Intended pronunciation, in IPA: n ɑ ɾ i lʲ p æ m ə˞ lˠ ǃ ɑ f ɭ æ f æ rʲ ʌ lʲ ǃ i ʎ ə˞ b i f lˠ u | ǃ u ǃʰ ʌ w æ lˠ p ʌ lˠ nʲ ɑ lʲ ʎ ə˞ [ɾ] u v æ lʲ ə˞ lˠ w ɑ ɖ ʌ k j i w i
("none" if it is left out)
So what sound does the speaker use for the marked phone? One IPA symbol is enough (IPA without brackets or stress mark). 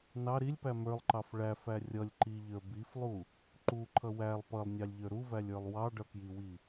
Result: ɾ